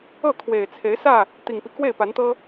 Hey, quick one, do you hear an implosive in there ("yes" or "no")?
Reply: no